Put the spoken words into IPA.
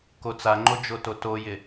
kot͡saŋ͡ǃo d͡ʒototojɪ

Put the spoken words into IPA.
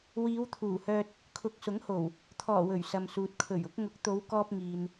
wiː˨˧wt̪ʰuː˨˩hœː˧t̚ | kʰʊ˨˥k̚sʊ˨˥ŋho˨˩w | t̪ʰɔː˨˩ wɵ˨˩ɥsɐ˨msuː˨t̚ kʰɵ˨˩ɥʊ˨˥k̚ ŋʊ˨˥k̚t̪o˨˧wkɔː˧p̚ŋiː˨n

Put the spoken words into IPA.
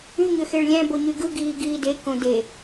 y ɲøxeɭlʲæ̃ boɲyɡɯ ɡiːɡiːde kõde

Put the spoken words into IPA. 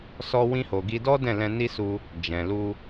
sɔ˧wĩ˧ ho˨ɡi˧dɔ˦ dɛ̃˦˨lɛ̃˧ ni˦su˧ | d͡ʒɛ̃˨ lu˧

